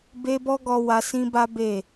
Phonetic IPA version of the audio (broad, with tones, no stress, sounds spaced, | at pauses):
b e˦ b ɔ˦ ɡ ɔ˧ w a˧ s ĩ˦ b a˦ b e˦˨